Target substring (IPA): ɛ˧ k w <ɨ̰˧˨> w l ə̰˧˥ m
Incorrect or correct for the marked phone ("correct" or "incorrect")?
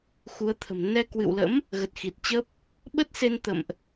correct